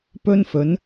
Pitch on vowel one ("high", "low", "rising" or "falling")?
high